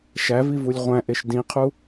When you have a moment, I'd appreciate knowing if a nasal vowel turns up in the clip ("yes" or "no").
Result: yes